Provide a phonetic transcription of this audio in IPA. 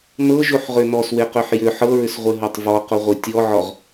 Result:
nɤʒoħʁø nɔsweqøħ jʏ ħɤɹʏsʁʷeɦɔtˤ vɔqoʁʷe tʲɔʕɔʁ

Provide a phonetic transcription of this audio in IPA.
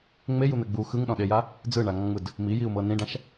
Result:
ŋ͡mejun̪ɛ ɡ͡bu xɯŋɗɔ̃ɗeja | d͡zɯɳaŋɔ̃ŋ͡mɯd | mijiu̯mɤ nĩɖãʃ

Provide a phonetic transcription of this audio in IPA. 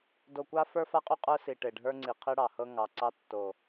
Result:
do˨kʷa˦ fə˞˦fa˦qʼy˦ qʼə˞˦si˨ ʈe˨ɖʱə˞˦ŋ͡ǀi˨ qʰi˦ɽɑ˨hɤ˦ŋɑ˨ ǀɑ˦tːo˨

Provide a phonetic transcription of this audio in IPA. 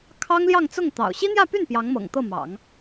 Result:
kʰɑ˥ŋljɑ˥˧ŋt͡sʊ˥˩ŋ t̪ɑ̰˨˩ʊ̯ ɕi˥n̪jä˥˧py˥˩n pjɑ˧˥ŋmɤ̰˨˩ŋt̪ɤ˥˩mɑ̰˨˩˦ŋ

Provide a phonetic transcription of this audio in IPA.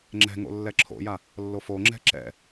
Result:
ŋ͡ǁɛ̤ ŋo̰lːɛǁʰo̰ja | lːofoŋ͡ǁɛ̤ ǁɛ̰

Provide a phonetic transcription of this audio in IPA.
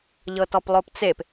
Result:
ʎɤtɔplˠopt͡sep

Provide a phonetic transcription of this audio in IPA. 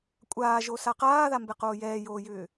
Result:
kʷʼaːʒosa qaːðambɛqoː jɛːjoːjʏː

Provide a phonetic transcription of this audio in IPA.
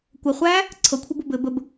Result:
kʷəχʷæː | ǀʰɤkʷʰɘbɤ bɘ bəb

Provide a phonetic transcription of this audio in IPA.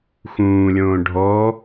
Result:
xũːlʲõː ɖʱɔ

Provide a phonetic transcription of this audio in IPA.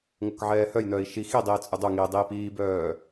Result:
ŋokʕɛːhœj nœːi̯ʃi xidˤiːt͡sʼʏ dˤoŋiːdˤiːp iːbœː

